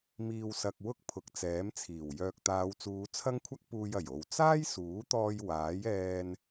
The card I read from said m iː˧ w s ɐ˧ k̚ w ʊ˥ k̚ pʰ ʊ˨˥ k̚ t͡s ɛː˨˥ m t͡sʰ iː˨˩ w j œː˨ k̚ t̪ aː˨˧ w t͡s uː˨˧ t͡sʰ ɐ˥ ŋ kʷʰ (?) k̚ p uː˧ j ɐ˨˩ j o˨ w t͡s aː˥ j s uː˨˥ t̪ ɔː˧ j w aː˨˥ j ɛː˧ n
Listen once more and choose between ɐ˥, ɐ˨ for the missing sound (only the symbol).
ɐ˥